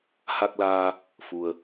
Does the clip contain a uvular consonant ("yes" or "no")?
no